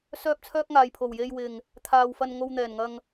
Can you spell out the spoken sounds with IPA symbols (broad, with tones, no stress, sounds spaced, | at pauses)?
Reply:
s œː˥ p̚ t͡sʰ œː˥ k̚ ŋ aː˨ j pʰ o˨˩ w j e˧ j w ɪ˨ ŋ | t̪ʰ aː˧ w f ɐ˧ n ŋ o˧ w n̪ ɛː˨˩ n ŋ ɐ˧ ŋ